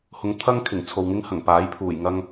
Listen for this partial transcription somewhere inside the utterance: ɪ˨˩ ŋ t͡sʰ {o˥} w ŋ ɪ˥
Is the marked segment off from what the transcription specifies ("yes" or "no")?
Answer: yes